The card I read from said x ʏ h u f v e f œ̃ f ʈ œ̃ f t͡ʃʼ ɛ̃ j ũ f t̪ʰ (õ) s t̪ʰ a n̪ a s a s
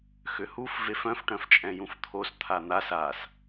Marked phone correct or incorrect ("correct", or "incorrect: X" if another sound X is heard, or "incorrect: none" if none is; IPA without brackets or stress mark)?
incorrect: o